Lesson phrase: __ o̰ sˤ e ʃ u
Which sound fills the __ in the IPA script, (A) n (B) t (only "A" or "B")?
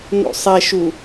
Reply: A